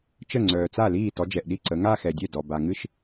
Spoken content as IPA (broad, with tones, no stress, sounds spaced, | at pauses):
t͡ʃ ə˥˩ ŋ͡ǀ œː˨ t͡s a˥˩ l iː˥˩ t ɔ˨˦ d͡ʒ ɛ˨ ʔ ɗ i˥˩ ǀ ə˨˦ ŋ a˥˧ x ɛ˨ dʲ ɛ˥˩ d ɔ˨ b a˨ ŋ ɨ˥˧ ʃ